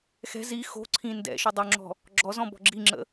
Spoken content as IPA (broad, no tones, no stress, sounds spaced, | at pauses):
x ɛ̤ z i x o̤ ǀʰ ĩ n d ɛ̰ ʃ y dˤ o ŋ͡ǁ ɔ̤ | ɡ͡ǁ ɔ z ɔ̃ b ɔ̤ ɡ͡ǁ i ŋ͡ǁ ə̰